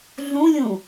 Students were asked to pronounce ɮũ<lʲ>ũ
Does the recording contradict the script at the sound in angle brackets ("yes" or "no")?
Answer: no